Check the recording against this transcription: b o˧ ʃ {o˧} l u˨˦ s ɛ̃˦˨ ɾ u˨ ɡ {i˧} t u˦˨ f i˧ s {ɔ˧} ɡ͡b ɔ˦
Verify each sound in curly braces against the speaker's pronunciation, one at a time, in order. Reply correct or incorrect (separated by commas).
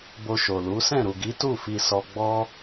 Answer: incorrect, incorrect, correct